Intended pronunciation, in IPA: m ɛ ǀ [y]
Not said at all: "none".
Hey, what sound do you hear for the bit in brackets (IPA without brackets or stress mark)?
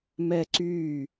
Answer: y